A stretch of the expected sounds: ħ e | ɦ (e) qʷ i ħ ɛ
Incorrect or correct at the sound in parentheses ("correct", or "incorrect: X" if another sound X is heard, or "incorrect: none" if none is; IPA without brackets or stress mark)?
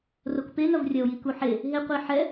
correct